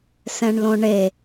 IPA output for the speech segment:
s ɛ̃ ɳ l õ ɳ e

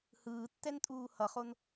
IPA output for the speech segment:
h ɯː tː ɛ n tʼ uː h ʌ χ o n

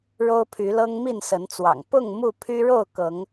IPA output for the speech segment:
ɻ o˦ ʊ̯ pʰ y˨˦ l ɤ˦ ŋ m i˥˨ n s ə˨˦ n t͡s w ɑ̰˨˩ ŋ p ʊ˥˨ ŋ m u˥˨ pʰ y˦ ɻ o˥˨ ʊ̯ k ɤ˨˦ ŋ

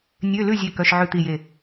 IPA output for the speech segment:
nʲ ø˧˥˧ l ʉ˥˨ zʲ e˥˨ k œ˧˥˧ ʃ ʕ ʉ˥˨ t̪ i˥˨ j e˥˨

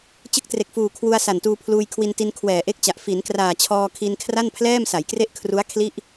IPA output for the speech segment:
t͡ɕ ɯ˦˥ k̚ t r e˨˩ k̚ f uː˨˩ kʰ w u˧ a̯ s a˨˩ n t uː˧ pʰ l uː˧ j kʰ w i˧ n t i˧ n kʰ w ɛː˨˩ ʔ e˦˥ k̚ t͡ɕ a˨˩ ʔ f i˩˦ n k r aː˨˩ t͡ɕʰ ɔː˧ kʰ i˧ n kʰ r a˥˩ n pʰ l ɛː˥˩ m s a˩˦ j k r e˥˩ ʔ kʰ r u˦˥ a̯ kʰ l i˥˩ ʔ

